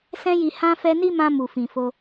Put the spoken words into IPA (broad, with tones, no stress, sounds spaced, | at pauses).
s ɛ̃˧ j i˨ h ã˧ f ɛ˧ n i˦ m ã˧ m u˨ f ĩ˨ f o˧